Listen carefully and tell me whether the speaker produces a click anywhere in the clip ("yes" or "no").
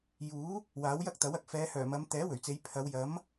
no